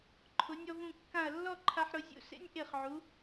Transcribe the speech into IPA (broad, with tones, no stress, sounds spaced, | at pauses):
ǃʰ ʊ˩˧ nʲ ɔ˧ v ũ˧˩ kː ã˧˩ ɐ̯ lː ɔ˥˧ ǃʰ a˧ ħ ɾ ʊ˩˧ zʲ ṵ˧˩ s ḛ˥ nʲ ʔ e˧˩ χ ʕ u˩˧